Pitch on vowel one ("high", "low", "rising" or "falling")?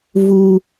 low